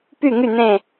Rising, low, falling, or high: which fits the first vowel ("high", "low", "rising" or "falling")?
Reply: falling